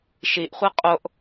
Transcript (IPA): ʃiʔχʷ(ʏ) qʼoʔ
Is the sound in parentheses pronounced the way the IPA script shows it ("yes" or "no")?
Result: no